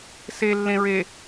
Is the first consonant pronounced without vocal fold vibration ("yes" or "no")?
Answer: yes